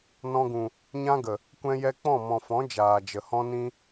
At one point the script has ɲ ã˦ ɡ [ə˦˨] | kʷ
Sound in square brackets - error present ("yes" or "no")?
yes